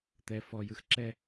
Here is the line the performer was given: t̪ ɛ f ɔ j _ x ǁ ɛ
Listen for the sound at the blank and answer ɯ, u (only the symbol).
ɯ